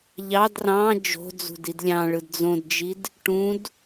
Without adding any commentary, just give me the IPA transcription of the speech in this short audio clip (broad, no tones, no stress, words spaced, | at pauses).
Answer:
ʎɑd rɑ̃ d͡ʒo̤d͡zṳd idlʲɑ̃ɭɯd d͡zõdd͡ʒid | ʈũd